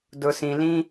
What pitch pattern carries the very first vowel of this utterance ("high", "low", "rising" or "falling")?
low